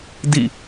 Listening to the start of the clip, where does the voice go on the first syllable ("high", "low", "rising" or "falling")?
falling